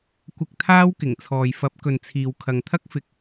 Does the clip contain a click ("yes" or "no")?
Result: no